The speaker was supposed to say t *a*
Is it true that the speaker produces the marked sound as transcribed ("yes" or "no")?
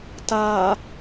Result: yes